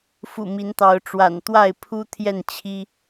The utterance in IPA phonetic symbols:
fṵ˨˩ mi˨˦nt̪ɑ˨˦ʊ̯ʈ͡ʂwa̰˨˩n t̪wa˥˨ɪ̯pʰu˦ t̪ʰjɛ˥˨nt͡ɕʰi˦

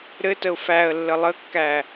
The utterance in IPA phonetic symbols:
ɾɘtəʊ̯ fæə̯lːə lˠəkːæ

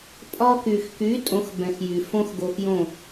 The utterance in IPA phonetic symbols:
pʼɒ˧ky˩xky˩˥ tʼõ˩˥xbɛ̃˩xjy˩ fõ˧x ɡo˧xjõ˥˩

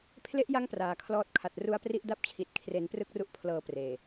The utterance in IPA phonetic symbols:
pʰle˦˥ʔja˦˥ŋ praː˩˦kʰlɔː˦˥t̚kʰa˨˩t̚ ru˦˥a̯pri˥˩ʔda˥˩p̚t͡ɕʰi˨˩t̚ kʰre˩˦nprɯ˦˥k̚ru˦˥ʔ pʰlɤː˨˩ preː˨˩

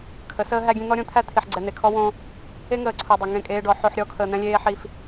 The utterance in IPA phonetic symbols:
kʰə˨˦səː˦ɦæ˦ɡʲẽ˦ n̪ɔ˦ɾʲõ˦t̪ʰæ˦ t̪ʰi˨ħɡ͡ǀɛ˨n̪e˨kʰɔ˦ wõ˦ | e˦ŋəː˨ǀʰo˨ dˤe˨ŋẽ˦˨ kʼeː˦ɖɔ˨˦ ħo˦ħ ɾʲɔ˦kʰəː˨n̪ɛ̃˦lʲeː˦ ħi˦f

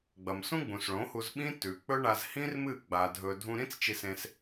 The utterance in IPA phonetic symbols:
ɡ͡bɐ˨msũ˦ ɡ͡bũ˨sɭõ˨˦hu˧z ɓĩ˦ tʉ˨ k͡pɵ˦ɳa˧z hĩ˦rmɨ˦˨ ɡ͡ba˧ dʱɵ˧ dʱũ˧ɾĩ˦t͡st͡ʃi˧sẽ˧s

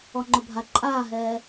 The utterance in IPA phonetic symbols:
ɔŋ͡ǃʊbʱa ǃʼaːɦɛː

